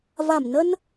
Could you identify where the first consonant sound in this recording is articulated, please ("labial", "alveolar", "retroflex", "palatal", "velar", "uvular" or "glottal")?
labial